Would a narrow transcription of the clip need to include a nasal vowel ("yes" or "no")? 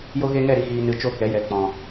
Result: yes